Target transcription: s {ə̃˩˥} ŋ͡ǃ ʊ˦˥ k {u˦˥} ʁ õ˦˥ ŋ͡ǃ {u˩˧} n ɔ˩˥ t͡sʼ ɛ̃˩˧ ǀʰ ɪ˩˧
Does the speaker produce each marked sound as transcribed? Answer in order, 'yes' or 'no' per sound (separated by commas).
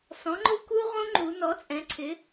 no, yes, yes